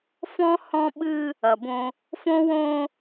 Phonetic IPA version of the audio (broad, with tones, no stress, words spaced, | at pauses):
fɔ̃˦ hɔ̃˦ɓɨ˦ | ɐ˨bõ˦ | fõ˦wõ˦